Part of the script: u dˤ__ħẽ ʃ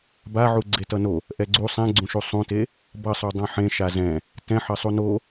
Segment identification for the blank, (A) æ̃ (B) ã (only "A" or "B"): B